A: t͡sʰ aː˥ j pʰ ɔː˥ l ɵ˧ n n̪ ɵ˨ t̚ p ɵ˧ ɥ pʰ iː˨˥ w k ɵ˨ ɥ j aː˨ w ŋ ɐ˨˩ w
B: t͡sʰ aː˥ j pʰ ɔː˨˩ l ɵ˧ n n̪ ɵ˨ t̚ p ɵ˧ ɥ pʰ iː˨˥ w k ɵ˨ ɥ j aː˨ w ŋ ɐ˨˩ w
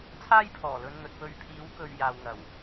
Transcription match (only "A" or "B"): B